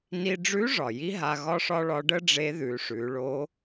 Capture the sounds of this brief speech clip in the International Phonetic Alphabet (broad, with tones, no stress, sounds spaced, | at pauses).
n i˧ ɖ͡ʐ ʉ˧˥ ʐ ɒ˩ j i˥ ɦ a˧ ɣ ɒ˥ ʂ ɒ˥ ɭ ɒ˧˥ ɖ ə˥ ɖ͡ʐ e˧˥ ð ʉ˩˧ ʂ ʉ˩˧ ɭ o˧˥